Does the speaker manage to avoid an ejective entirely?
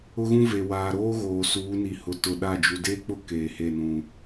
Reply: yes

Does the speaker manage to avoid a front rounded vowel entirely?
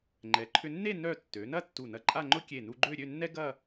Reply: no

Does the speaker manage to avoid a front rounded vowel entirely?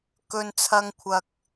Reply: yes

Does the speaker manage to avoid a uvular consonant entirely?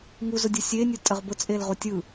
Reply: no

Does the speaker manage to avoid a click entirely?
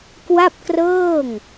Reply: yes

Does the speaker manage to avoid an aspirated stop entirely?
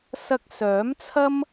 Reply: no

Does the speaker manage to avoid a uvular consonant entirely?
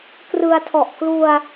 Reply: yes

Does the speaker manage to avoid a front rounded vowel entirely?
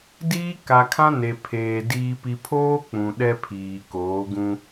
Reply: yes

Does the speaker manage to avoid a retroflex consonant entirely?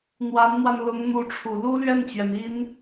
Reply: no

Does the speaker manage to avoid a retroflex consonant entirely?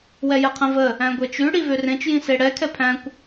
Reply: no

